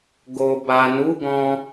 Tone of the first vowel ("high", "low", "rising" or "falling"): low